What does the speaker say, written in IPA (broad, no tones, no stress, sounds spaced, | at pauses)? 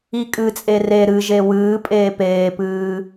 i kʼ ɨ t͡sʼ e r e ɾ ɨ ʒ e w ɨː pʼ eː p eː p ɨː